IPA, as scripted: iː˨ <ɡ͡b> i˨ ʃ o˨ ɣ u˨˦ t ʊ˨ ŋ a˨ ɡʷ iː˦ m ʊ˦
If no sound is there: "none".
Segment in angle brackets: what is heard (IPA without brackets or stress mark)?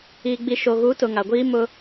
ɡ͡b